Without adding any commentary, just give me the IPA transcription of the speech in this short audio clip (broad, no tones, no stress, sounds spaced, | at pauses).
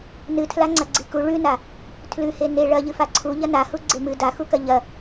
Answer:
n ɨ tʰ l a ŋ͡ǀ ɐ ɡ͡ǀ i k u ɭ ʉ n a | tʰ l ʉ h e n e ɭ ɐ ʎ ɨ f a ǀʰ u ʎ ɐ n a h u ɡ͡ǀ e m ɨ d a x u k ɐ ʎ ɐ